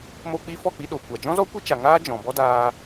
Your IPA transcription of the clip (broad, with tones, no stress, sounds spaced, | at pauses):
m o˧ k͡p i˧ f ɔ˦˨ k͡p i˧ ɗ o˨ kʷ a˨ d͡ʒ ɔ̃˦ z ɔ˦ kʷ i˦ t͡ʃ a˨ ŋ aː˦ d͡ʒ ɔ̃˨ b ɔ˦ d aː˧